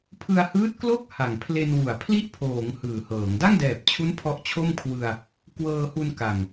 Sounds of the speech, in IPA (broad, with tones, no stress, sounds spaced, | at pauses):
pʰ ɯ˧ a̯ h ɯː˦˥ t̚ k l o˥˩ k̚ h a˨˩ ŋ pʰ l e˧ n w u˩˦ a̯ pʰ l i˥˩ ʔ pʰ oː˩˦ ŋ h ɯː˨˩ h ɤː˩˦ ŋ d a˥˩ ŋ d ɛː˨˩ p̚ t͡ɕʰ u˦˥ n pʰ ɔ˦˥ ʔ t͡ɕʰ o˥˩ m kʰ w ɯ˧ a̯ | k w ɤː˧ h u˧ n k a˨˩ ŋ